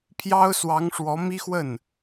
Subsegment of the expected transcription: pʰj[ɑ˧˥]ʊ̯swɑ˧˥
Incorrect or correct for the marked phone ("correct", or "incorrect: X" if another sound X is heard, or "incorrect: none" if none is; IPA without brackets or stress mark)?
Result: incorrect: ɑ˥